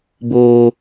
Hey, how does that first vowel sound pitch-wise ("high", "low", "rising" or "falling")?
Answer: high